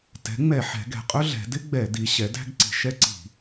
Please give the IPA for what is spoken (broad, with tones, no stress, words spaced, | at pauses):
tɛ̤˩˥ŋ͡mɛ˧˩˧ ħɛ̤˩˧ɡɛ̤˨˩qʼɵ˥ ɮɛ̤˩˧dɪ˥ɡ͡bɛ˧˩˧ di˩˧ ɕɛ˩˥dæ̤˥ɡǀi̤˧˩˧ ʃɛ˥ǀi̤˧˩˧